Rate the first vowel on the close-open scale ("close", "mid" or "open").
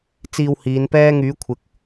close